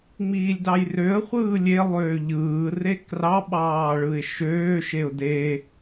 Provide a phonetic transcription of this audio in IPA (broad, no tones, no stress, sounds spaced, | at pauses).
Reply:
ŋ͡m iː lʲ d ɑ j r ø ə̯ χʷ ɯː lʲ e lˠ øː ʎ ɯː r e k r ɑ ɓ ɑː ɭ ɯ ɪ̯ ʃ øː ʃ e ʊ̯ d e